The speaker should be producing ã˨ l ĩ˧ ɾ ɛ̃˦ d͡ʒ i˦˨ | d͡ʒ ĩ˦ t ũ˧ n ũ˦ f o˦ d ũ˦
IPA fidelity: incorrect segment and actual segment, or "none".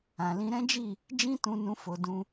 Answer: none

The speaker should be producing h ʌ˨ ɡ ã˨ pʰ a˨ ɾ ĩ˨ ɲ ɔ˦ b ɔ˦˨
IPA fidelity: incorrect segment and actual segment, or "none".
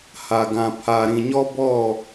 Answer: ʌ˨ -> a˨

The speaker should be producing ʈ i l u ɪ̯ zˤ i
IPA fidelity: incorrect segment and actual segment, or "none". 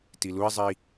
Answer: ʈ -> t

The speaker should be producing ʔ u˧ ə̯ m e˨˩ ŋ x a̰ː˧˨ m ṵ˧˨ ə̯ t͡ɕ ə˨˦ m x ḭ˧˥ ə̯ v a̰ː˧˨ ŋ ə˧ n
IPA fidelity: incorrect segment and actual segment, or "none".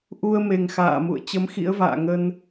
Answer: none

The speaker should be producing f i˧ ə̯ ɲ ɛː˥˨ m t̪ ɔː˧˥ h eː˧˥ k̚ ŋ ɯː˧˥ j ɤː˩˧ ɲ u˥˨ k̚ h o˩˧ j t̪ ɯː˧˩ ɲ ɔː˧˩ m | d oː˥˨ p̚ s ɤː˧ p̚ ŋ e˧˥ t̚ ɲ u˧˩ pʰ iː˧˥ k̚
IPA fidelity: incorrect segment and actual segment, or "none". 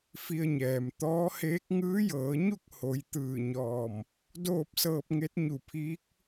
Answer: ɛː˥˨ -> ɛː˩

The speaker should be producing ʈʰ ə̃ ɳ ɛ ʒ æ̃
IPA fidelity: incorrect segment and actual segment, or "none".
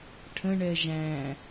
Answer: none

